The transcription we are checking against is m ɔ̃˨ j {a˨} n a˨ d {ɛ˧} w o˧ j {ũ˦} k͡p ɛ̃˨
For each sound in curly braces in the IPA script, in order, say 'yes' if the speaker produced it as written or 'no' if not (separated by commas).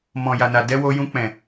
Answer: yes, yes, no